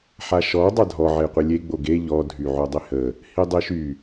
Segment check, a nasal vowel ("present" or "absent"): absent